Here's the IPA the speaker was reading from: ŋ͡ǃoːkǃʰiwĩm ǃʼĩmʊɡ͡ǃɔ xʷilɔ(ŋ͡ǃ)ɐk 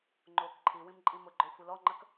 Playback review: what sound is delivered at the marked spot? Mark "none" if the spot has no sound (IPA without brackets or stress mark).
ŋ͡ǃ